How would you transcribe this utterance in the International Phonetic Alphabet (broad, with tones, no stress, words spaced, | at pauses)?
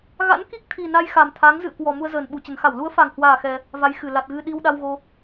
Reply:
ɣa̰˧˥nki˦˥k̚t̪ʰi˨˩ na˧jxa˨˩mt̪ʰa˨˦ŋ zɨ̰˧˨ə̯kwɔ˨˩ mu˧ə̯zəː˨˩nɓu˨˩t͡ɕə˨˩n xa˧˩wlu˨˦ə̯fa˨˩ŋhwaː˨˩ xɛ˧ | va˨˦jxɨ˧˩ la˨˩t̚ɣɨ˧ ɗi˧wɗa˧wɣo˧